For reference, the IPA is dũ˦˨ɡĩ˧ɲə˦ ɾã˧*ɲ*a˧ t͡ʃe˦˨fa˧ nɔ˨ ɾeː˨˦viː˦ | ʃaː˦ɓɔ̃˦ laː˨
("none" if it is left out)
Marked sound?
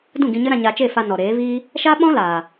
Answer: ɲ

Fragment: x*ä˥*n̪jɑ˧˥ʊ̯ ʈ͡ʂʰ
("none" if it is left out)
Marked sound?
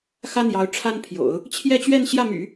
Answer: ä˥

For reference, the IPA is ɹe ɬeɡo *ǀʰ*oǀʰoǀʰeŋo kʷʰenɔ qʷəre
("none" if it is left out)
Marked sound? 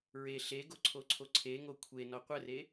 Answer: ǀʰ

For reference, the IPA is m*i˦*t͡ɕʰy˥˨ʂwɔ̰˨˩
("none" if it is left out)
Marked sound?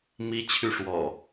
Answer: i˦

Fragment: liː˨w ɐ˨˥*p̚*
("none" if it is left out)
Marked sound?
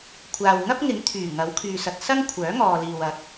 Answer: k̚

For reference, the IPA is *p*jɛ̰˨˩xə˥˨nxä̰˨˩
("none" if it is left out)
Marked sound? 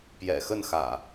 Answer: p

